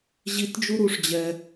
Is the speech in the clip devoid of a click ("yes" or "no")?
yes